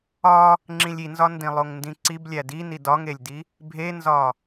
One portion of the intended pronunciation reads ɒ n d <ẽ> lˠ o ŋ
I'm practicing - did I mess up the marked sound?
yes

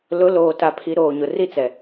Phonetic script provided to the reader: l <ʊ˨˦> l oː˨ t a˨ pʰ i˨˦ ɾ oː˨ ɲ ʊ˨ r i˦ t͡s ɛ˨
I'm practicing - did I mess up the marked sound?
no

